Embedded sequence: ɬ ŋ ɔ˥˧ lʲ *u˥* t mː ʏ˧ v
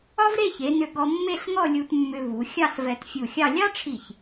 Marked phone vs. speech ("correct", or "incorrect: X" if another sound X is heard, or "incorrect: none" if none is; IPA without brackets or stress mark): incorrect: u˧